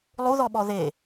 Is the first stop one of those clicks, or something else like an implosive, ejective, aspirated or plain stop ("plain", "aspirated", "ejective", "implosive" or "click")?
implosive